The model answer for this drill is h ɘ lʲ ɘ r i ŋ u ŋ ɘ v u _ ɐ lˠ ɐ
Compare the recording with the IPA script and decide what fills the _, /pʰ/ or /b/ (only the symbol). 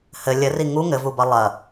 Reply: b